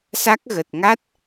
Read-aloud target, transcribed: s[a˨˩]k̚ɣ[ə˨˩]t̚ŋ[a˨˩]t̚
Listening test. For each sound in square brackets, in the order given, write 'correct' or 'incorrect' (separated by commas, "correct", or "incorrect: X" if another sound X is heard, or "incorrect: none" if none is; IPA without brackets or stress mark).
incorrect: a˦˥, correct, incorrect: a˦˥